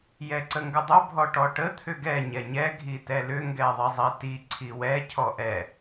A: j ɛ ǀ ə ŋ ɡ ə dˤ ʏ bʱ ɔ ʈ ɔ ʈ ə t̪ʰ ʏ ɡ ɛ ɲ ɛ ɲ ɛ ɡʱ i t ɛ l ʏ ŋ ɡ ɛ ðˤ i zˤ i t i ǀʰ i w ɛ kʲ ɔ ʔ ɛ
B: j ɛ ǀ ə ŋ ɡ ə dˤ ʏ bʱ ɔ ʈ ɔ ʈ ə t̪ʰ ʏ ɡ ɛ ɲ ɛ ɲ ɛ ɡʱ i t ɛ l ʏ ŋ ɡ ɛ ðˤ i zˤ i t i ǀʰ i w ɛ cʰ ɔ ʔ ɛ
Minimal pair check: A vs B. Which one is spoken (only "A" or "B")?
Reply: B